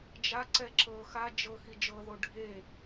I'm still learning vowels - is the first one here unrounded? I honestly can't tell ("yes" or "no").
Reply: yes